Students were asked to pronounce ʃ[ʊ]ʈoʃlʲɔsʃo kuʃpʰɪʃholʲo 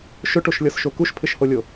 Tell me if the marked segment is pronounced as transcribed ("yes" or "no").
yes